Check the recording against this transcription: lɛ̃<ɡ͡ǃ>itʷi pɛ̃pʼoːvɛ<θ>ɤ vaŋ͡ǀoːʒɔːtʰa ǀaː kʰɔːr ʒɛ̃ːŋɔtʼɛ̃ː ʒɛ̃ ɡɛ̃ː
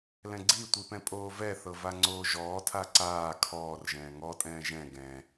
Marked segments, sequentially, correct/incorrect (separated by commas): incorrect, correct